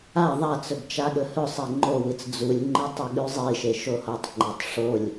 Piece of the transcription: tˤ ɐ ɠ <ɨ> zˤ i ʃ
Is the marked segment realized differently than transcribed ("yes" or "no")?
yes